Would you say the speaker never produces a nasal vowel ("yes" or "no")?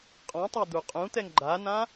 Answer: no